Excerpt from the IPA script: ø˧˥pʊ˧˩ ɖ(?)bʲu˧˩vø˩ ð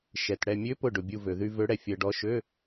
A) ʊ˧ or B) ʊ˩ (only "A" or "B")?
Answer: B